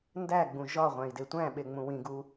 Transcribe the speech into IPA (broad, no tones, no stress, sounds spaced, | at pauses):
n d æ ɡ͡b ũ ʒ ɒ ʁʷ æ̃ i̯ d e tʷ æ̃ ɓ e ŋ͡m ũ w ĩ ɡ u